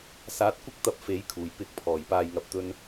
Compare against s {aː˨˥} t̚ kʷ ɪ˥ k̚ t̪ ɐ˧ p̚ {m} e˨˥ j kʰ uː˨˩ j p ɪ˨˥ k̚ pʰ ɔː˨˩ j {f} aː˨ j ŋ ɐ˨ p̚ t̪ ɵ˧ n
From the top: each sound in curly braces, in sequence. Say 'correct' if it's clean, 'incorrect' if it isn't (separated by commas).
correct, incorrect, incorrect